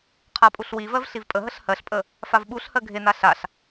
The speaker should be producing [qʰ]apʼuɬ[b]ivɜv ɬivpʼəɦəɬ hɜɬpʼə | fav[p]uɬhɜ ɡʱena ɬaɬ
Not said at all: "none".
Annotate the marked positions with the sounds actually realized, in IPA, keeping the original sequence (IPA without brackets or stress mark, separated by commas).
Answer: qʰ, w, ɓ